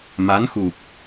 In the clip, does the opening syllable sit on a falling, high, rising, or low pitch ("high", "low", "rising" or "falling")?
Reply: rising